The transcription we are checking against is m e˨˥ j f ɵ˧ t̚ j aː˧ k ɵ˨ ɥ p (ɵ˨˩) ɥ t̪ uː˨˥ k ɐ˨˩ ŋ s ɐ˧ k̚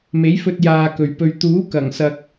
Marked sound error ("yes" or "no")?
yes